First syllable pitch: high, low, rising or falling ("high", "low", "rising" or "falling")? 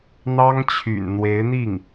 high